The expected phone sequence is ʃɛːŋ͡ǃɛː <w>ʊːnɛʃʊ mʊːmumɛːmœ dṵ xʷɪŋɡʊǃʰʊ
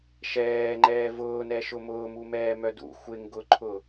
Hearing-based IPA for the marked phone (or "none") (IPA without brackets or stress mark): v